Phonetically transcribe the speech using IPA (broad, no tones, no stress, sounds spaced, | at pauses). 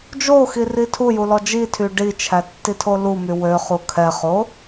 d͡ʒ o x i r i tʰ u j u l ɔ d͡ʒ i tʰ y ɖ i t͡ʃʰ æ tː i tʰ o l u m y w ø χ u kʰ ɛ χ o